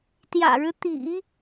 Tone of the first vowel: low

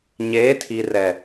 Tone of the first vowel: rising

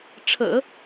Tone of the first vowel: low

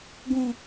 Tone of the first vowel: low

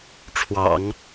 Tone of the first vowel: low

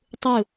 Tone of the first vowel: falling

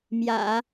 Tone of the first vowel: low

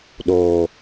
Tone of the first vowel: low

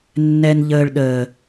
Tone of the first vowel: low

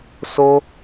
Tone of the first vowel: high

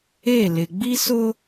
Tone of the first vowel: falling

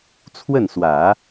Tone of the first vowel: falling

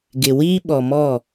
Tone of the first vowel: low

